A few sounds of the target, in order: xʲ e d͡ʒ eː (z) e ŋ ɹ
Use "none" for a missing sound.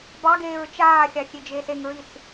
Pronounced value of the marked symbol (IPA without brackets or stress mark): s